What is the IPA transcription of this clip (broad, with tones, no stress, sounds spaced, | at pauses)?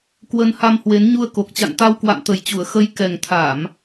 k w ə˧ n h a˧ m h w e˨˦ n ɲ u˧ ə̯ k o˨˩ k̚ t͡ɕ a̰˧˨ n t̪ a˧ w k w a̰˧˨ m t̪ ə˨˩ j t͡ɕ u˧˩ ə̯ x ə˨˦ j k ɛ˨˩ ŋ t̪ʰ a˧˩˨ m